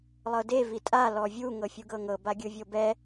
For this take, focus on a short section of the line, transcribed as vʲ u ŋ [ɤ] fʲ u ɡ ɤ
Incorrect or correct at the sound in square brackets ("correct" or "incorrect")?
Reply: correct